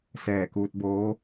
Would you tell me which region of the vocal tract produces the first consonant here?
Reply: tongue tip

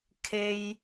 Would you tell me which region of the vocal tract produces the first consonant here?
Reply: velum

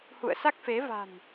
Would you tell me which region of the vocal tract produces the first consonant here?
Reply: throat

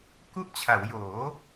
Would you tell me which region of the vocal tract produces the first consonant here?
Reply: velum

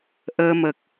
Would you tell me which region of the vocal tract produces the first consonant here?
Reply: throat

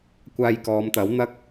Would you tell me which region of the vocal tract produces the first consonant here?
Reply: velum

